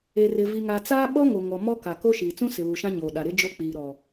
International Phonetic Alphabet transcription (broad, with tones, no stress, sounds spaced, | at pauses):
e˨ r ɪ˨ v i˨ ŋ a˨ t͡s aː˦ ɓ ɔ˦ ŋ o˨ ŋ ɔ˨ m ɔ˦ k a˨ k o˦ ʃ iː˨ t͡s ũ˦ s ɪ˨ β u˨ ʃ ã˦ ɲ oː˨ ɗ a˨ ɾ ɪ˦ d͡ʒ o˦ k͡p iː˨ ɾ ɔ˨